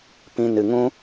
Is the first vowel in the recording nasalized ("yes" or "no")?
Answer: yes